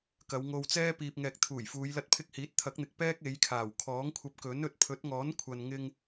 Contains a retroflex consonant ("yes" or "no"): no